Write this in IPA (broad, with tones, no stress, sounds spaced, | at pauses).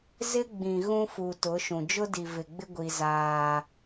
z ɪ˦ ɡ͡b ĩ˨ ɣ ũ˦ f u˨ t ʊ˨˦ ʃ ũ˨ d͡ʒ ʊ˦ d i˨ v ɪ˨ ɡ͡b ɪ˦ ɡʷ i˦ z aː˦